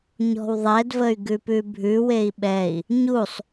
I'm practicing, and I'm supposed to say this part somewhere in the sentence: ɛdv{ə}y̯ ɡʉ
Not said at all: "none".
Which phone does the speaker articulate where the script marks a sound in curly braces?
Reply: ə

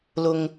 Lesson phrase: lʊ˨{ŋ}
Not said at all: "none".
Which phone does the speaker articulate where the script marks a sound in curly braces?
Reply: ŋ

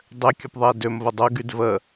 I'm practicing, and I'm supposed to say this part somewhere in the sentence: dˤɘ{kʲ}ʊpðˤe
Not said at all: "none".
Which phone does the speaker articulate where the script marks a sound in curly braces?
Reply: kʲ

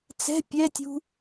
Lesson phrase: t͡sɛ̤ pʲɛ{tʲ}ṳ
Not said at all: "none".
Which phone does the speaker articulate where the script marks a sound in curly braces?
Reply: tʲ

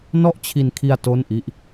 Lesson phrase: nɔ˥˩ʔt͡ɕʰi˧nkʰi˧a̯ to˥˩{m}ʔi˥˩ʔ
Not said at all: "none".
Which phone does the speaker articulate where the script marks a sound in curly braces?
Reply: n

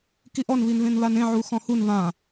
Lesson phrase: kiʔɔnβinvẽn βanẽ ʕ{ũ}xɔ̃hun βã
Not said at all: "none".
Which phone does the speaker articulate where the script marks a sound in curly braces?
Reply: u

